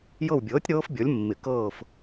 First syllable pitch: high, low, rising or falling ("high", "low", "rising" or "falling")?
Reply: falling